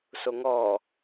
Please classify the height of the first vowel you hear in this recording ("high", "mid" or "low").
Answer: mid